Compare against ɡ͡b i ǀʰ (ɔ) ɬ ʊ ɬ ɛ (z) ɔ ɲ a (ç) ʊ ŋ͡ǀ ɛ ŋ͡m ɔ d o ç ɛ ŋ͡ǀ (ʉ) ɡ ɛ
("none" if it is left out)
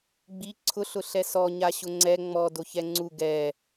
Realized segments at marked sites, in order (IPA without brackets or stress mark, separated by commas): ʊ, s, ɕ, u